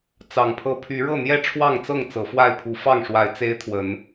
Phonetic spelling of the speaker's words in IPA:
t͡s ɑ˨˩ ŋ pʰ ɤ˦ pʰ y˨˦ ɻ ɤ˥˨ n̪ j ɛ˥˨ ʈ͡ʂʰ w ɑ˥˨ ŋ t͡s ɤ˥˨ ŋ t͡s ɤ˨˦ f w a˥˨ ɪ̯ pʰ u˨˦ f ɑ˥˨ ŋ ʂ w a˨˦ ɪ̯ t͡s e˦ ɪ̯ t̪ʰ w ə˨˦ n

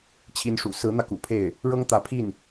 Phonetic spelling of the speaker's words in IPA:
t͡ɕʰ i˧˥ n ʂ ṵ˨˩ s ɹ̩˧˥ n̪ ä˧ k ṵ˨˩ pʰ e˥˩ ɪ̯ | ɻ ɤ˥ ŋ t̪ ä˧˥ pʰ i˥˩ n

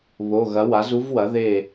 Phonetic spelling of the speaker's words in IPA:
β o˩˧˩ ɣ ɐ˩˥ w a˩˥ z u˦˥ v w ɐ˩˥ ð e˧˩

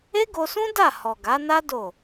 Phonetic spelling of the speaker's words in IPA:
e˦ ɡ o˧ s ũ˦ d a˦˨ h ɔ˨ ɡ a˨˦ n a˦ d o˦˨

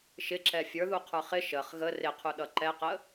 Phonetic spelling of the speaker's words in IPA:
ʃ ɪ ǁ ɛ fʲ ə˞ ð u qʰ ə˞ χ ɪ ʃ ə χ ɣ ə r ɪ qʰ u ɗ ʌ ǃ ɛ q ə

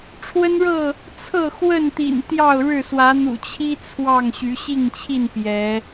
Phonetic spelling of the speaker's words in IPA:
ʈ͡ʂʰ w ə˦ n ɻ ɤ˥˨ | t͡sʰ ɤ˥˨ x w ə˥˨ n t̪ ḭ˨˩ n t̪ j ɑ˥˨ ʊ̯ ɻ ɻ̩˥˨ s w ä˨˦ n̪ ṵ˨˩ t͡ɕʰ i˦ t͡sʰ w ɑ˥˨ ŋ ɕ y˨˦ ɕ i˥˨ ŋ t͡ɕʰ i˥˨ n p j ɛ˨˦

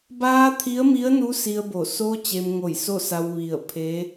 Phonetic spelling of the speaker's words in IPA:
b aː˧ t̪ʰ i˧˥ ə̯ m i˧˥ ə̯ n u˧˥ s i˧ ə̯ b o˧˩ s o˧ t͡ɕ e˧ m ŋ o˧˩ j s o˥˨ s a˧ w ʋ i˧˩ ə̯ pʰ e˧˥

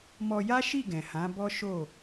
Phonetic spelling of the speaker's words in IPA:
m ɔ˧ j a˦ ʃ i˦˨ ɡ ɛ̃˨ h ã˨˦ b ɔ˦ ʃ o˦˨

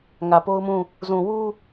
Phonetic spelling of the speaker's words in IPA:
ŋ ä˨ p o˦ ʊ̯ m ũ˦˨ | z ũ˨ w u˦

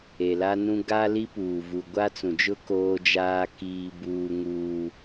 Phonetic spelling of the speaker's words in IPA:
e˨ l a˦ n ũ˦ ɡ a˦ l i˦ p uː˨ v u˨ ɡʷ a˦ t͡s ũ˨ d͡ʒ ʊ˦ k oː˦ d͡ʒ aː˦ k iː˦ b uː˦ ŋ uː˦

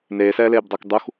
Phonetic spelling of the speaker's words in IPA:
n eː s ɛː l eː b dˤ ɤ k dˤ u x

